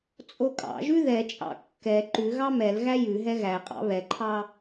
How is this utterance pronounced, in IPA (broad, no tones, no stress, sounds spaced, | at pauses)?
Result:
t͡sʼ o kʼ ɑ̰ ʒ ʉ ð ɛ t͡ʃʼ ɑ̰ kː ɛ ǃ ʉ ɣ ɑ m ɛ l ɣ æ j ʉ ɦ ɛ ɣ æ qʼ ɑ̰ β ɛ ǃʰ ɑ